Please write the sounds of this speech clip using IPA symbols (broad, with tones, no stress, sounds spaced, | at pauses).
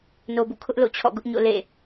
n o˨ b ṵ˦˨ kʰ ʊ˦ ʔ l o̰˦˨ t͡ɕʰ ɔ̰˦˨ ɡ ʊ˦ ʔ ɲ o̰˦˨ l ḛ˦˨